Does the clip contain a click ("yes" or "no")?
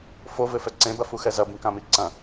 yes